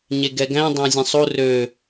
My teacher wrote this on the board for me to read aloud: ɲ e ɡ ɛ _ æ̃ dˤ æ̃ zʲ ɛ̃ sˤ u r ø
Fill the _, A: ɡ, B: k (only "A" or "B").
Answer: A